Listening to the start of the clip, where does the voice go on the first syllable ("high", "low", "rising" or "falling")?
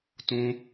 high